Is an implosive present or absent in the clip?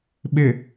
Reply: present